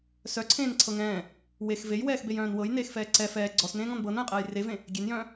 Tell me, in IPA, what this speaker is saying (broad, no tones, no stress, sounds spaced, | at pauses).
s œ ǀʰ ẽː n ǀʰ ɤ ŋ ɛ̃ː | w e x v e j w ɛː x b e j œ̃ː n w ɤ j n eː x f ɛː ǀ ɛ f ɛː ɡ͡ǀ ɔ s n ẽː ŋ ɔ̃ n b ɤː n œ̃ j qʼ ɛː j r e v ẽ | ɡʲ e n j œ̃ː